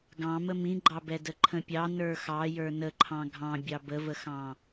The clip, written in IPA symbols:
ɡ ɑ̃ m ə m ĩ ɡ͡ǃ ɑ b ɛ d ə ǃʰ ə̃ pʲ ɑ n ə˞ x ɑ j ə˞ n ə ǃʰ ɑ̃ ɡʱ ɑ̃ bʲ ɑ b ə v ə x ɑ̃

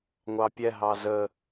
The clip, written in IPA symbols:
ŋʷ ɑ pʲ ɛ ɦ ɑ z ə

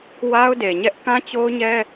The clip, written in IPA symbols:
w a˦ ʊ̯ d e˨ ɲ ɛ˦ ʔ k ã˦ t͡ɕ o˦ ʊ̯ ɲ ɛ˦

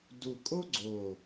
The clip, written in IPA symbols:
d u˨˩ kʼ o˦ ɡ͡ǀ o˨˩

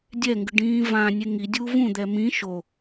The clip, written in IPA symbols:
dʲ ɛ ŋ ɡ ɯ ɖ ĩː v ã nʲ e ŋ i dʲ uː v ũ d̪ ɛ m ĩ ʃ o

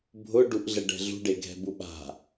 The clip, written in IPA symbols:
bʱ ʊ ɖ u ʔ ɮ ɛ ɖ ɛ̤ ɮ ṳ ɖ e ɡʱ ɛ̤ b u ɓ a̤

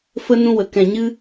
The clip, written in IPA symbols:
f ə˦ n ũ˦ w ə˧ k ɛ̃˧ ɲ ɨ˦

